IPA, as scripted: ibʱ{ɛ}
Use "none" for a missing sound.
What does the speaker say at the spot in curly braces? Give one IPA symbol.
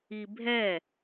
ɛ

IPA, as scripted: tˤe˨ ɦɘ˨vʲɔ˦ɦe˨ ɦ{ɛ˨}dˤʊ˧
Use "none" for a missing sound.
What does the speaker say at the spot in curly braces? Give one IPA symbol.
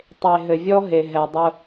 ɛ˨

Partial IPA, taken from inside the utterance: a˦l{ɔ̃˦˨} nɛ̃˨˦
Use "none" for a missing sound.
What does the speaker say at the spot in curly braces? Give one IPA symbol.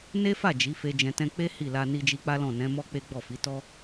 ɔ̃˦˨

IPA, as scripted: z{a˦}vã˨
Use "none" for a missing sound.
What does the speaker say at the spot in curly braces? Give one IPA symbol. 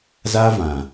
a˦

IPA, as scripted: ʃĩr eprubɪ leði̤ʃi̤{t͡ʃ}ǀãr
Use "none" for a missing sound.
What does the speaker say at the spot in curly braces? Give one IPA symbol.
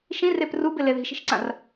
ʃ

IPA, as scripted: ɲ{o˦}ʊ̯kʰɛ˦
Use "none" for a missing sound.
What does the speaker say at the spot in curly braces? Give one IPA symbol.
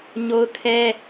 o˦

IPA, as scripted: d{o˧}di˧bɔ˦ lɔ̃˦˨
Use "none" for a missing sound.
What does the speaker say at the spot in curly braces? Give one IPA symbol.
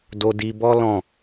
o˧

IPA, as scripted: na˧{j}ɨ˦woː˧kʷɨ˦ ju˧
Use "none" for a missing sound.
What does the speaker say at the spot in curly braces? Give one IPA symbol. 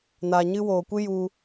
ɲ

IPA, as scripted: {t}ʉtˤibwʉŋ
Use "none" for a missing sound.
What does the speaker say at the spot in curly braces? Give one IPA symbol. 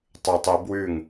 tˤ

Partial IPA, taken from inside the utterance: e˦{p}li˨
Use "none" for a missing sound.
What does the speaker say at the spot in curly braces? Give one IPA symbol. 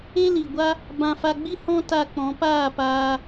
none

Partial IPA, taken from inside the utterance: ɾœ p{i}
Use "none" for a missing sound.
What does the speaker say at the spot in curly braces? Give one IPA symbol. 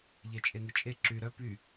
y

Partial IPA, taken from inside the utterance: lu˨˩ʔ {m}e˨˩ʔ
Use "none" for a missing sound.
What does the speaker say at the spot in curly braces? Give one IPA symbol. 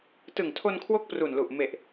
m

